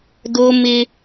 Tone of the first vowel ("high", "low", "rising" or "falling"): high